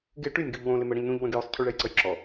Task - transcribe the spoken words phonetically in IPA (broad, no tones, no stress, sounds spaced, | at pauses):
ɡ ɪ ʈ y nʲ ɡ u ʎ w õ l ɪ m ə ɽ ə̃ ʎ n ũ ʎ w ə̃ ɡ j o sˤ cʰ y ɭ ɛ j ǀ ə j ǁ ɔ